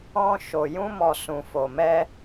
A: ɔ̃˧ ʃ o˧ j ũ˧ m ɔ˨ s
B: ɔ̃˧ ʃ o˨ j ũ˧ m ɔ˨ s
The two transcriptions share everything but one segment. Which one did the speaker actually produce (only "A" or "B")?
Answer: B